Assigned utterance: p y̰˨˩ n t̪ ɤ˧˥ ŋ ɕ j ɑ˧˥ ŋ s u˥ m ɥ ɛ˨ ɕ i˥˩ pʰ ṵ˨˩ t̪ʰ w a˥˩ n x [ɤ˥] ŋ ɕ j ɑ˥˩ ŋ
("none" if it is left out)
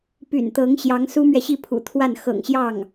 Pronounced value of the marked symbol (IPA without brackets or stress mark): ɤ̰˨˩